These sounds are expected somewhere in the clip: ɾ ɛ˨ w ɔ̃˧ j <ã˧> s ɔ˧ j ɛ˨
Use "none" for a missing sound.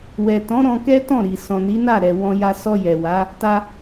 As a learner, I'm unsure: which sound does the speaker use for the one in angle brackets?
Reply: a˧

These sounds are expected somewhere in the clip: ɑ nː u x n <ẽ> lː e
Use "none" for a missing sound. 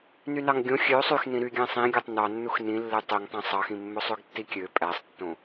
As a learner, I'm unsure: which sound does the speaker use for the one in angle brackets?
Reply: ĩ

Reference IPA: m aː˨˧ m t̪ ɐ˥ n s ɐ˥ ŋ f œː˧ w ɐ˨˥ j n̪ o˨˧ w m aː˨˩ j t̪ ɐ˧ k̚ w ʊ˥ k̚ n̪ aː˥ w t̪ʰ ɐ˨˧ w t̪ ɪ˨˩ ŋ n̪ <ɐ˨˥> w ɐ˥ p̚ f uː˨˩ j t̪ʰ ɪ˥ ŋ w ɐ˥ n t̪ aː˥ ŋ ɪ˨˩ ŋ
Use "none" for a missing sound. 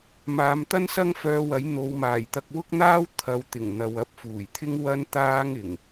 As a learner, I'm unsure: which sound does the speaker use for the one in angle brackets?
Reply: ɐ˨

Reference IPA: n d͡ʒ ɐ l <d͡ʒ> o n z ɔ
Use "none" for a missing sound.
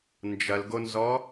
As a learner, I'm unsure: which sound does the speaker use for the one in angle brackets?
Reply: ɡ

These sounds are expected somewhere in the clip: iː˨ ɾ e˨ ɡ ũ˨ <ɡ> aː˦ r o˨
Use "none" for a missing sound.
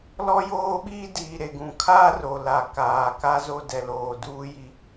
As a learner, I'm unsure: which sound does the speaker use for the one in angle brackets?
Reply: kʰ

